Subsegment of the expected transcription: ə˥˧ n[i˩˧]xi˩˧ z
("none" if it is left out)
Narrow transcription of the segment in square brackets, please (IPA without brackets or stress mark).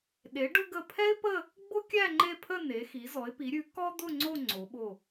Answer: e˩˧